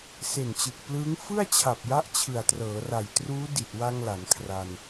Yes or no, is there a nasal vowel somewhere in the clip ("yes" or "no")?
no